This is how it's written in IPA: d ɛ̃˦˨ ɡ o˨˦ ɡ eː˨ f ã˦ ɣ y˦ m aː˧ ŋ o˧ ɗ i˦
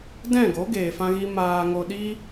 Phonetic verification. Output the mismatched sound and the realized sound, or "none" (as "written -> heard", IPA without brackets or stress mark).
y˦ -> i˦